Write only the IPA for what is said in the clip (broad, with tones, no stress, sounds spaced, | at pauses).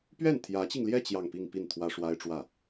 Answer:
p ɥ ɛ˥˩ n t̪ʰ j ä˧˥ t͡ɕ i˧ ŋ l j ɛ˥˧ t͡ɕ j ɑ˥˧ ŋ p i˥˧ ŋ p i˥˩ n t̪ʰ w ä˥ ʂ w a˥ ɪ̯ ʈ͡ʂ w ä˥˩